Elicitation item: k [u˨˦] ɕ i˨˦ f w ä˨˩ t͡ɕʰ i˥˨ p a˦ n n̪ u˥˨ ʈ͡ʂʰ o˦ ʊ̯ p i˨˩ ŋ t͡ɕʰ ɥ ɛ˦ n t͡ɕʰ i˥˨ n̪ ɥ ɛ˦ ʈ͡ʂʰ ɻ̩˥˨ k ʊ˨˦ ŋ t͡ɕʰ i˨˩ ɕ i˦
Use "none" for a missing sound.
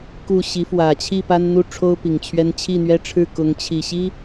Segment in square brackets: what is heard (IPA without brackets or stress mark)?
u˥˨